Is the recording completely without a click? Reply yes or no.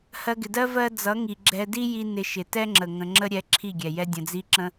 no